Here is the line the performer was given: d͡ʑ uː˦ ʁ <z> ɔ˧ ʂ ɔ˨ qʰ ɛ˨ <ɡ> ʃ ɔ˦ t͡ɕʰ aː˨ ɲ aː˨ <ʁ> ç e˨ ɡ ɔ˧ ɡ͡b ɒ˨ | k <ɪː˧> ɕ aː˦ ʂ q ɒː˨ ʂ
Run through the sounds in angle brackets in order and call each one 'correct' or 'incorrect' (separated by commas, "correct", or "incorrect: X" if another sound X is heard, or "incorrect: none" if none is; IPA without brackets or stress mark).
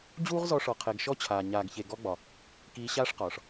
correct, correct, incorrect: ɡ, incorrect: iː˧